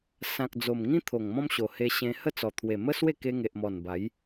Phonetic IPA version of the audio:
s ã˨ k̚ d͡z o˨˩ m ŋ ĩ˦ t̪ʰ o˨˩ ŋ m ɔ̃˦ m ɕ o˨˩ h e˧ ɕ ẽ˧ h ə˥˧ t͡s ɔ˨˩ t̪ʰ w e˨˩ m ə˦ s w e˥˧ k e˧ ŋ e˨ ʔ m ɔ˨˩ n b a˨˦ j

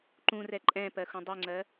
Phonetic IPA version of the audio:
ǃ ũ r ɛ ǃʼ ɛ̃ p ɜ x ũ dˤ o ŋ͡ǀ ɜ

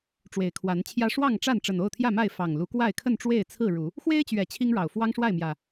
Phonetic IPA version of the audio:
ʈ͡ʂ w e˨˩ ɪ̯ kʰ w a˨˦ n t͡ɕʰ j ä˦ ʂ w ɑ˥˨ ŋ ʈ͡ʂ a˥˨ n ʈ͡ʂ ə˨˩ n o˥˨ ʊ̯ t̪ʰ j ä˥˨ m a˥˨ ɪ̯ f ɑ˨˩ ŋ l u˨˦ k w a˥˨ ɪ̯ kʰ ə˥˨ n ʈ͡ʂ w e˥˨ ɪ̯ t͡sʰ ɹ̩˥˨ ɻ u˨˦ | x w e˦ ɪ̯ t͡ɕ ɥ ɛ˨˩ t͡ɕʰ i˦ ŋ ɻ ɑ˨˩ ʊ̯ f w ɑ˦ ŋ ʂ w a˥˨ ɪ̯ m j ä˨˩

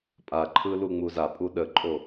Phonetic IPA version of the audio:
pʼ a ǃʰ ɯ l u ŋ͡m u z a pʼ u ɗ ə ǃʼ o

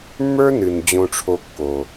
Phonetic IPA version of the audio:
mː ə˞˥ n ɨ˩ n d͡ʑ õ˨ ʈ͡ʂʰ o˨ kː o˩

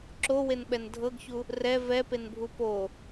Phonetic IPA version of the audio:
ǁ o w e n ɓ ɛ n dʱ ɤ ɡ ç u | r ɛ v ɛ p e n bʱ u p o

